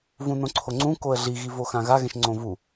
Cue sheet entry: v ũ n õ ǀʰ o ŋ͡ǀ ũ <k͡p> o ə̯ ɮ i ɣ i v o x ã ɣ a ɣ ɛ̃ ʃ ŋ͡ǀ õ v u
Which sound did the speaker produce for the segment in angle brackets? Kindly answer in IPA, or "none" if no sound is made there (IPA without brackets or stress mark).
k